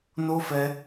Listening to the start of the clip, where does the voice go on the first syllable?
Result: high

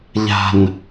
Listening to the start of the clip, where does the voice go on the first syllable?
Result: low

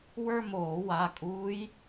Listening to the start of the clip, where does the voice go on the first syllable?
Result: falling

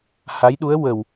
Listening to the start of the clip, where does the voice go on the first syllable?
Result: rising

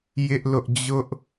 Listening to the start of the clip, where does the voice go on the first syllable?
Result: high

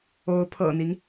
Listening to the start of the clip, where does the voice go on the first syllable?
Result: rising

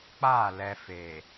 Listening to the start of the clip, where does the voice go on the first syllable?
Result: falling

